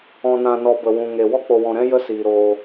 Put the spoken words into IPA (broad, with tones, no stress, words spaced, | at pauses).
ɔ̃˨nã˨nɔ˨ bə˨wũ˨ŋe˨ wɔ˦k͡po˨wɔ̃˨ɾɛ̃˦ jə˦siː˨ɾoː˧